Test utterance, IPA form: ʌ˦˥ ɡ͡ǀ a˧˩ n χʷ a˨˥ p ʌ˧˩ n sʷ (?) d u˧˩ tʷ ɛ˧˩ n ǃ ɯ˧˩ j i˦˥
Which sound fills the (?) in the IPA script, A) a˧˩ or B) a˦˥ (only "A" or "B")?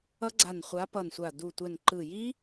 A